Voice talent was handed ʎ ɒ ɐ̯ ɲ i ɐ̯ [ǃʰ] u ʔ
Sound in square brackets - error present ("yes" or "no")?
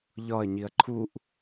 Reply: no